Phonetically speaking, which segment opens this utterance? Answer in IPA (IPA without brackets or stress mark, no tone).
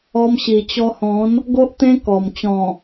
ɔ